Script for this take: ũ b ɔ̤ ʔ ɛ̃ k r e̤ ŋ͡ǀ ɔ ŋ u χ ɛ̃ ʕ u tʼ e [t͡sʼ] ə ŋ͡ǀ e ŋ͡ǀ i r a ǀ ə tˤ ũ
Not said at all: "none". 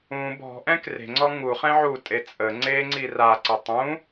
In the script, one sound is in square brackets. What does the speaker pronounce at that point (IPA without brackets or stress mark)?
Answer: t͡sʼ